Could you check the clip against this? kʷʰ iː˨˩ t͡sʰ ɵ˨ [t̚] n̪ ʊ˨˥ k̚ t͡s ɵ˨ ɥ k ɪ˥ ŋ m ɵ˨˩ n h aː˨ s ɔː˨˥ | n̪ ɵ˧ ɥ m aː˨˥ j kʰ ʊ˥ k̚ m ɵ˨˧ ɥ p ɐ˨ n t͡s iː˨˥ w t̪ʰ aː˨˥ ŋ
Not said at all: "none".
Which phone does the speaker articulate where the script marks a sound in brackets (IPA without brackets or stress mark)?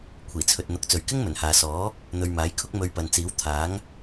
t̚